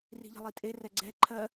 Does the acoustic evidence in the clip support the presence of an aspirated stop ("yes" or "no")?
yes